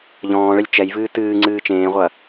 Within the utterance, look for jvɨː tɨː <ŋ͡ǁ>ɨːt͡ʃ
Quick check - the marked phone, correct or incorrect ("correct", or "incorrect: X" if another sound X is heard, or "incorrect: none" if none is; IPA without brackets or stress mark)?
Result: incorrect: ŋ͡ǀ